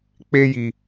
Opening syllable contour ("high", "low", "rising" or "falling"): high